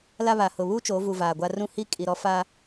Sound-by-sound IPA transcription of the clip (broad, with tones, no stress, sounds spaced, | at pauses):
l a˦ β a˨ h ʊ˨ β u˦ t͡ʃ oː˨˦ v u˨ v aː˨ ɡʷ a˦ r ũ˦ h i˦ kʼ i˨ ɾ ɔ˦ f a˦